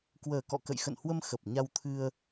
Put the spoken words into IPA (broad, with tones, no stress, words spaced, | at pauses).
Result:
kwəː˨˩kɔ̰˧˨kə̰˧˨j xə̰˧˨nhwə˧m xə˨˩p̚ ɲa˧wt̪ʰɨ˧ə̯